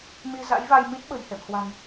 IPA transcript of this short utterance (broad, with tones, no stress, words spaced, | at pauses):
mi˧za̰˧˥jva˧j mi˦˥t̚ɓə̤˨˩j hḛ˧˨mhwa̤˨˩n